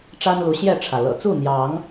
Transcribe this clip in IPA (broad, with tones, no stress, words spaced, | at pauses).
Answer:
ʈ͡ʂa˦nlu˨˦ɕjɛ˥˨ʈ͡ʂʰä˩ lɤ̰˨˩t͡su˥˨n̪jɑ˨˦ŋ